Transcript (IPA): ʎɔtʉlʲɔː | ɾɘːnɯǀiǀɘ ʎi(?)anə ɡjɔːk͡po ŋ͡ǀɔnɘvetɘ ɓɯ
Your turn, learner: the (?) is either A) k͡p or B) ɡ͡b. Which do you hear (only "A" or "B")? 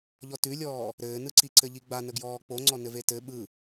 B